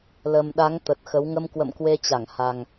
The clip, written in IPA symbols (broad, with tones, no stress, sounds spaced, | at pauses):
l ə˨˩ m ɗ a˨˦ ŋ t̪ ə˨˩ t̚ x ə˨˦ w ŋ ə˧ m k w ə̰˧˨ m k w e˧ t͡ɕ a˧˩ ŋ h a˨˩ ŋ